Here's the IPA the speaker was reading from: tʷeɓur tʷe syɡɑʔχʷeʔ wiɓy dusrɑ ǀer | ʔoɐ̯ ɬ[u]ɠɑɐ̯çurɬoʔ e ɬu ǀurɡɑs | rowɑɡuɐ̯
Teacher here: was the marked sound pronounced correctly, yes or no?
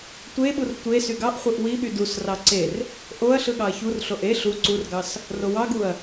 no